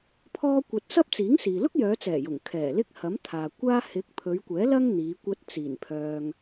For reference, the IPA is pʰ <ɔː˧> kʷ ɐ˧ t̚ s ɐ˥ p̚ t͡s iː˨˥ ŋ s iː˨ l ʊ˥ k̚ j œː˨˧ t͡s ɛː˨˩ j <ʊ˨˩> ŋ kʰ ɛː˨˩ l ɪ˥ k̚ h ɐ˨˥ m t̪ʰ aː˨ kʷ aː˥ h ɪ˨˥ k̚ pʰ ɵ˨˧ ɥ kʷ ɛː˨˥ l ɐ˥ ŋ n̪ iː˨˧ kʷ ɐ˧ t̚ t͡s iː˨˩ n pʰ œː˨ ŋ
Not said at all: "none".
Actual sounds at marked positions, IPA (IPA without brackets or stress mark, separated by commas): ɔː˥, ʊ˨˩